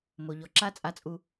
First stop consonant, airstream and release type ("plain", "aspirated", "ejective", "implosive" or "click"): click